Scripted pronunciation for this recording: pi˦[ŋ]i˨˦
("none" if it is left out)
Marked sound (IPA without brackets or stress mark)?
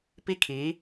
kʰ